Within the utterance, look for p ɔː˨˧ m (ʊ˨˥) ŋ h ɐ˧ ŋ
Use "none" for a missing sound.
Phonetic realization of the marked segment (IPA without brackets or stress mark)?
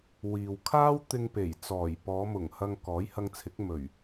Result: ʊ˨˩